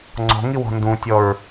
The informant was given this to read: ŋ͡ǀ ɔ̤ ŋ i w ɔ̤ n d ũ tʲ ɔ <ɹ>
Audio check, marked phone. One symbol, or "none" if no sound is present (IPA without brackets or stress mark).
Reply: ɹ